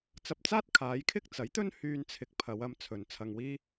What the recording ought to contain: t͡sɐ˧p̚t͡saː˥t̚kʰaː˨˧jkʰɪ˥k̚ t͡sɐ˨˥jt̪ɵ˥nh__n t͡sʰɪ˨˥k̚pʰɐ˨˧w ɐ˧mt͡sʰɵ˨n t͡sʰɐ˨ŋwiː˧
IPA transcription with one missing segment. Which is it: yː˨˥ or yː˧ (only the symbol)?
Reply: yː˧